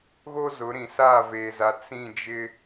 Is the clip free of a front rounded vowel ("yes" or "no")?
yes